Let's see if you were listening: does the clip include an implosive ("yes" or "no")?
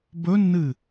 no